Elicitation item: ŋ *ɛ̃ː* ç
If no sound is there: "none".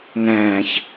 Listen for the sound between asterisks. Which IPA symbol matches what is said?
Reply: ɛ̃ː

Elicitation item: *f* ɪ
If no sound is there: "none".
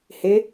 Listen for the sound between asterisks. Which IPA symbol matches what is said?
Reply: h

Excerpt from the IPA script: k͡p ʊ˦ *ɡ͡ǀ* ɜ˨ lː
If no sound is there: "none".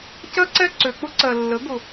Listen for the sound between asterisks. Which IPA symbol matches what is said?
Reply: ǀ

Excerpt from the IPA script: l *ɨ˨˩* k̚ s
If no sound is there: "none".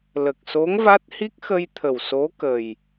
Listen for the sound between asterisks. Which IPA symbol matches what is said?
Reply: ə˨˩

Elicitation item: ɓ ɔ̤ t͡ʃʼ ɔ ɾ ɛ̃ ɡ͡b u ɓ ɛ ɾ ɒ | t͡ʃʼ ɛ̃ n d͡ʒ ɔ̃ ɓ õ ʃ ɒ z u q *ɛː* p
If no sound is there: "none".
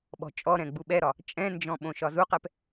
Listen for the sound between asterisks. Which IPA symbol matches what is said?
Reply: ɛ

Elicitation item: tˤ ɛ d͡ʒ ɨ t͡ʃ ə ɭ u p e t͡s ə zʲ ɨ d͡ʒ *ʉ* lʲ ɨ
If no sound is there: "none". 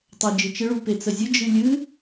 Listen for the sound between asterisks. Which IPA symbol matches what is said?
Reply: ɨ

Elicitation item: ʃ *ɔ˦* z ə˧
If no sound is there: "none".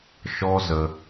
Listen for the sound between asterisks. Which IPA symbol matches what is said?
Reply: ɔ˦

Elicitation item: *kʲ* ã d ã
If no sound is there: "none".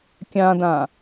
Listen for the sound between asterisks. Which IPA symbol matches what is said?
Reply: kʲ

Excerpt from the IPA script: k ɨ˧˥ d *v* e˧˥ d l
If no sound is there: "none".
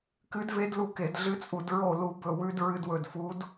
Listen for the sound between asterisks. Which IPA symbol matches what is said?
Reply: v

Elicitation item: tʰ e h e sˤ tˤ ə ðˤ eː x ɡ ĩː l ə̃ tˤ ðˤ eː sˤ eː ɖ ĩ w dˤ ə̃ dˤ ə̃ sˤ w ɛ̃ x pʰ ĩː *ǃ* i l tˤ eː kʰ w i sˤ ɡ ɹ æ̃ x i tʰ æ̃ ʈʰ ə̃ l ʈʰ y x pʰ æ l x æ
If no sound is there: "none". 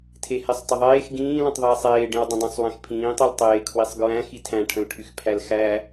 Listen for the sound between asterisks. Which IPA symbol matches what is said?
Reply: tˤ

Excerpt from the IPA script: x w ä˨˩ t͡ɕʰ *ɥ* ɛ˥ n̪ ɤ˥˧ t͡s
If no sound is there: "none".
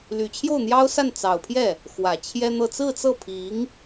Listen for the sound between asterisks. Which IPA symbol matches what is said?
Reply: j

